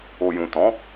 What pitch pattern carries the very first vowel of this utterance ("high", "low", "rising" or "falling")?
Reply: low